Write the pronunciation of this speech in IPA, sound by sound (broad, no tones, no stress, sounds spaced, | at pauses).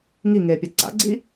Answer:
ŋ i ŋ eː pʲ a ǀ a̰ ɡ͡ǀ i